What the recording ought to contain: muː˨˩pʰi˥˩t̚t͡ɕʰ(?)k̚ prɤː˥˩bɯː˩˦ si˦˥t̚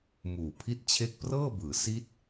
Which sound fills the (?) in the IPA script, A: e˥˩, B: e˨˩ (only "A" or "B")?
A